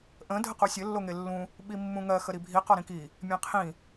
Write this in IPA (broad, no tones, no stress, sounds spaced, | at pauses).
ʔ ə̃ dʱ ə q u sʲ ɘ lː o ŋ e lː ũ | ɓ i mː ũ ŋ ɜ x ə ɾ i bʱ i q ɒ ɾ ĩ k i | mʲ ẽ qʰ ĩ